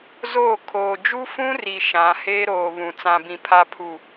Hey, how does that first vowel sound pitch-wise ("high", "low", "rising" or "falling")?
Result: falling